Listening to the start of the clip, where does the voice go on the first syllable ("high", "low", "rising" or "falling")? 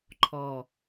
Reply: low